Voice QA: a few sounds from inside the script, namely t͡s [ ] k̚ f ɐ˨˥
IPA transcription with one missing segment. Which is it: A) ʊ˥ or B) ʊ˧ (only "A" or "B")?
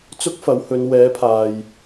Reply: A